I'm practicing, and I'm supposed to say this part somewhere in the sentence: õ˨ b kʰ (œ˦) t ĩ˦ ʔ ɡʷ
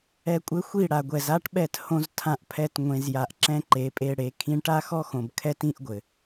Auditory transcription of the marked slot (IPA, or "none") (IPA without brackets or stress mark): ɛ˦